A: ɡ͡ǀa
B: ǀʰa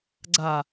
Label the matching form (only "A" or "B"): A